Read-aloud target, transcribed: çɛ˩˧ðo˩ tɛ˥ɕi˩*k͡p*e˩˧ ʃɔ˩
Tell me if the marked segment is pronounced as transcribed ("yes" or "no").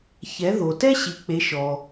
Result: yes